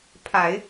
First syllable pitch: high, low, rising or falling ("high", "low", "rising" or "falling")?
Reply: low